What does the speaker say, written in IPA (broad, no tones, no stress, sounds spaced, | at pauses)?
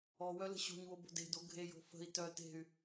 ɔ w œ l ə̤ ɕ o̤ ɲ w o b o̤ d e̤ d o ɡʱ e j o̤ f ə̤ i̯ t œ t e̤ y̯